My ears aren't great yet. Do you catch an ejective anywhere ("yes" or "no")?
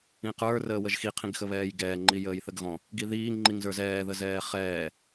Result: no